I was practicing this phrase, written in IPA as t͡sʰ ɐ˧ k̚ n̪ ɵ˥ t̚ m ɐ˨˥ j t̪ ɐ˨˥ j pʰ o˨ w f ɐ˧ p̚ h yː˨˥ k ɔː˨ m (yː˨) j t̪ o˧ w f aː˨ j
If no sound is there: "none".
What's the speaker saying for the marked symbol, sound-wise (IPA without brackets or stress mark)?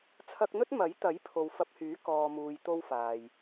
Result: uː˨